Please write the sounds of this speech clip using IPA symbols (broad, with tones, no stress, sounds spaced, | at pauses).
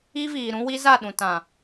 i˦ v iː˨ ɾ ũ˦ w i˦ z a˦˨ ɗ ũ˨ t ã˨